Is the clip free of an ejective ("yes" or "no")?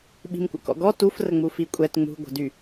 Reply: no